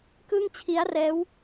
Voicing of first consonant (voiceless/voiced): voiceless